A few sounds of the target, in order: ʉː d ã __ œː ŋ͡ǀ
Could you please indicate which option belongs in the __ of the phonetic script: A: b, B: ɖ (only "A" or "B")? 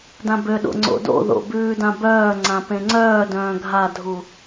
A